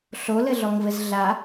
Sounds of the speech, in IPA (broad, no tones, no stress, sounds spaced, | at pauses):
ɬ o l ɘ ɮ ɔ ŋ v ɘ z ɮ a